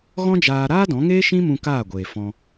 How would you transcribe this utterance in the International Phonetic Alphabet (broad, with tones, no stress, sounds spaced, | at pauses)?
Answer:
ɣ ɔ̃˦ d͡ʒ aː˧ ɾ aː˦ d ɔ̃˨˦ ŋ eː˦ ʃ ĩ˦ m ũ˧ k aː˦˨ ɡʷ eː˨ f ɔ̃˧